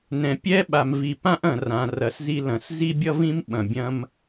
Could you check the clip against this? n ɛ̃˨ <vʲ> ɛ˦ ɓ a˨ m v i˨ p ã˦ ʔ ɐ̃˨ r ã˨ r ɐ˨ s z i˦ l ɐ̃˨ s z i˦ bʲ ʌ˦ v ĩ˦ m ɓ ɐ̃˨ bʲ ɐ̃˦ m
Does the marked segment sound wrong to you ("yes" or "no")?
yes